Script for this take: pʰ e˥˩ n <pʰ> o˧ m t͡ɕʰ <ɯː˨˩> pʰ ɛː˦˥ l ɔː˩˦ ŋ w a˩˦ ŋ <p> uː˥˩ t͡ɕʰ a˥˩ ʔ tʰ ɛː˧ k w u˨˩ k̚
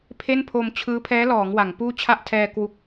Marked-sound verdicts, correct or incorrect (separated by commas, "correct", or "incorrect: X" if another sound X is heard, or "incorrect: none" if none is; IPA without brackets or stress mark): correct, incorrect: ɯː˦˥, correct